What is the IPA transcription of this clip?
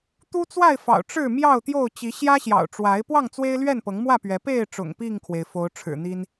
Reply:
t̪ u˦ t͡s w a˥˨ ɪ̯ f ɑ̰˨˩ ʊ̯ ʈ͡ʂ ɻ̩˥˨ m j ɑ˥˨ ʊ̯ t̪ j o˥˨ ʊ̯ t͡ɕ i˨˦ ɕ j ä˦ ɕ j ɑ̰˨˩ ʊ̯ ʈ͡ʂ w a˨˦ ɪ̯ p w ɑ˥˨ ŋ t͡s w e˦ ɪ̯ l ɥ ɛ˥˨ n p ɤ˨˦ ŋ m w ä˥˨ p ɥ ɛ˨˦ p e˥˨ ɪ̯ ʈ͡ʂ ʊ̰˨˩ ŋ p i˥˨ ŋ kʰ w e˩ ɪ̯ f o˨˦ ʊ̯ ʈ͡ʂʰ ɻ̩˨˩ n̪ i˦ n

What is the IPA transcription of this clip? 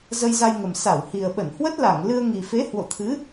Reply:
z ə˧ j z a˧ j ŋ ə˨˩ m s a˧˩ w h i˨˩ ə̯ ɓ ə˧˩ n h w ə˦˥ t̚ l a˧˩ ŋ l ɨ˧ ə̯ ŋ i˨˩ f e˨˦ h w o̰˧˨ t̪ʰ ɨ˨˦

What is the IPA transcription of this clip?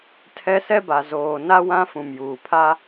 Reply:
tʰ ɛ˦ s ɛ˦ b a˨ z oː˨ n a˦ w ã˦ f ũ˨ m j uː˨ pʰ a˦

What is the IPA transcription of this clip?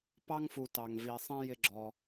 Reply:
p ɑ˥ ŋ f u˨ t ɑ˨ ŋ v i˨ sˤ ɛ̃˥ j ɪ˦ ɡ͡ǁ ɔ˨

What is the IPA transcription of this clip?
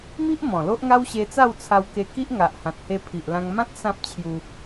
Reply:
m i˦ ʔ m ɔ̃˨˩ l o˦ ʔ ŋ a˦ w ɕ e˧ t͡s a˥˧ w t͡sʰ a˧ w k e˧ k i˦ ʔ ŋ a˨ ʔ h ã˨ t̚ h e˧ pʰ i˨ ʔ l ã˧ ŋ m ã˦ t̚ s ã˦ p̚ t͡ɕʰ j u˧

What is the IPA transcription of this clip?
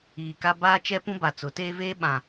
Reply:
iː˨ k a˦ b aː˦ t͡ʃ ɛ˦ p ũ˦ b a˨ t͡s ʊ˨˦ t eː˦ v eː˦ ɓ ã˨

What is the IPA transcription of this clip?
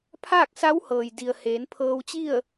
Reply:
pʰ aː˥˨ k̚ s a˧˥ w h ɤː˩ j d i˩ ə̯ h eː˩˧ n pʰ ɤː˧ w t͡ɕ i˥˨ ə̯

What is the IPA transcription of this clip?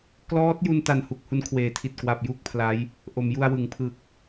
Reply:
k l ɔː˦˥ t̚ j u˧ n t a˨˩ n h u˨˩ k̚ h u˧ n kʰ w eː˩˦ tʰ i˨˩ t̚ k w a˨˩ p̚ j u˥˩ k̚ pʰ l a˦˥ j | ʔ o˩˦ m j u˧ a̯ w ɯ˩˦ ŋ pʰ ɯ˨˩ k̚

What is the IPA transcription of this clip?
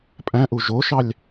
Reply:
pʼ æ̃ ʔ u ʒ o ʃ ɑ lʲ

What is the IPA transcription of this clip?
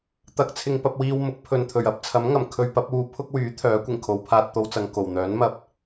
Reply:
t̪ ɐ˨˥ k̚ t͡sʰ ɪ˨ ŋ p ɐ˧ p̚ w iː˧ w m ʊ˨˥ k̚ pʰ ɵ˨ n t̪ʰ ɵ˨˩ ɥ ɐ˧ p̚ t͡sʰ ɐ˨˥ m ŋ ɐ˨˩ m kʰ ɵ˧ ɥ p ɐ˨˥ p̚ uː˧ pʰ ʊ˥ k̚ w yː˨˥ t̪ʰ œː˨˥ kʷ ɪ˨˩ ŋ kʰ o˨˧ w pʰ aː˧ t̚ t̪ o˧ w t͡s ɐ˨ ŋ k o˨˩ w n̪ œː˨˥ n m ɐ˧ p̚

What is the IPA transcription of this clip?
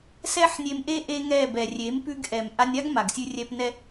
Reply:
s ɛ˦ ħ nʲ e˧ m ʔ e˦ ʔ e˦ ŋ ɛ˦˨ b ɛ˨ rʲ e˨˦ m p ʉ˧ ɡ ʔ ɛ˨ m ʔ a˧ nʲ a˦ ɡ m a˨ ɡ sʲ ʉ˧ rʲ ɛ˧ p n ɛ˦

